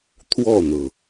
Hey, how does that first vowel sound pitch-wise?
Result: falling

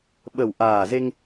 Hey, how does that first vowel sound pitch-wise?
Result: low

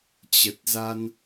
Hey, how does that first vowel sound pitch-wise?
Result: low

